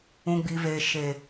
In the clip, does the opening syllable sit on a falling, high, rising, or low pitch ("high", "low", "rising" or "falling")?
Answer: low